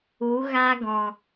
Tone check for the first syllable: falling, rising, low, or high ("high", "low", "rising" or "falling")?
rising